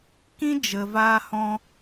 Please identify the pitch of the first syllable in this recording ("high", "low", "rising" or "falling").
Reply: high